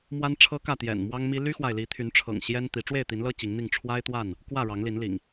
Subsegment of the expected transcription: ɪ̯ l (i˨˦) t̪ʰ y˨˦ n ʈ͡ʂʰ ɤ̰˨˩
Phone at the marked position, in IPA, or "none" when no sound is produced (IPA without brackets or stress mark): i˨˦